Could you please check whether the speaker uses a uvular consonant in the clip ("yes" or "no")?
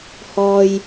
no